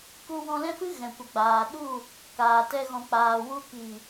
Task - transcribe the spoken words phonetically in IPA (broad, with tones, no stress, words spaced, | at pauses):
ku˧wɔ̃˧lɛ̃˦fɨ˦ ɣɛ̃˨kʷə˨ɡ͡baː˨ɗu˦˨ | kaː˨tɛ˧ ɣɔ̃˨k͡paː˨wu˧ ki˨